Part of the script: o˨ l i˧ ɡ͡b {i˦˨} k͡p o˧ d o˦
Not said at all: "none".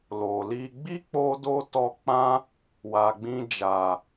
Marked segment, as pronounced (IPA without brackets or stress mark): i˦